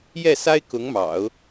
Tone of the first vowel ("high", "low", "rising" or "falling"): falling